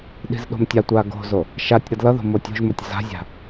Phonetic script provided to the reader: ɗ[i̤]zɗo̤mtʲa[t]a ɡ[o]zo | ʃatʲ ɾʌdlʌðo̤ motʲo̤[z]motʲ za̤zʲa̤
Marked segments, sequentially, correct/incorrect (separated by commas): correct, incorrect, incorrect, incorrect